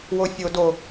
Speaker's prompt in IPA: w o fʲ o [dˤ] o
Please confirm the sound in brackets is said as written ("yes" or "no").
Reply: no